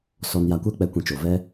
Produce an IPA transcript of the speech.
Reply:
s ɔ˧ n j a˧ kʷ ɛ˦ k͡p ɛ˨˦ kʷ ĩ˨ t͡ʃ o˨ v ɛ˦

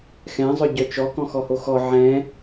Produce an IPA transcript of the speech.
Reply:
x ɛ̃ zˤ œ ɟ œ t͡ʃ ɔ k ɔ̃ x ɔ h o x ɔ ʕ ɛ̃

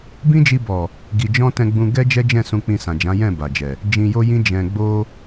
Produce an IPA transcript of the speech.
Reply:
b ĩ˦ d͡ʒ i˧ b ɔ˨ | ɡ i˨ d͡ʒ ɔ̃˧ t ɛ̃˧ ɡ͡b ũ˧ ɡ ɛ˦ d͡ʒ ɛ˦ d͡ʒ ɛ̃˦˨ s ũ˧ k͡p ĩ˧ s ã˨ d͡ʒ ã˨˦ j ɛ̃˦˨ b a˨ d͡ʒ ɛ˨ | d͡ʒ ĩ˨ j o˧ j ĩ˦ d͡ʒ ɛ̃˧ ɡ͡b o˧

